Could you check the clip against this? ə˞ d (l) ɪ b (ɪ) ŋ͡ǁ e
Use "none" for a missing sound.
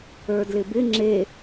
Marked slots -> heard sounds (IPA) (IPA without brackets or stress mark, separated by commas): l, ɪ